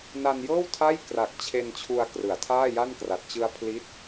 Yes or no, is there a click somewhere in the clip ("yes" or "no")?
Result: no